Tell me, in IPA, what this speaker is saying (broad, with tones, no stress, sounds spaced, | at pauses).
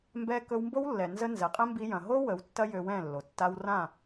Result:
m b ɛ˧ k ɵ˧ w m b o˦ w lː ɛ˨ n z ə˧ n z ɛ˨ qʼ ɛ̃˦ m b i˧ j ɐ̃˨ ɦ o˦ w ə˨˦ w tː ɐ˦ j ø˧ w ɛ̃˦˨ lː o˨ tː a˧ w r ã˦˨